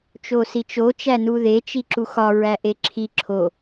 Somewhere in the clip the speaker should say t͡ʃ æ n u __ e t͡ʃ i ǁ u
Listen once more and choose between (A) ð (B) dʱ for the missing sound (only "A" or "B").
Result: A